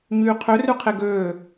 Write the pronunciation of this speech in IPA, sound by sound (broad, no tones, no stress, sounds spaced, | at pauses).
ɲ yː qʰ ø r ʉ qʰ e ɡ øː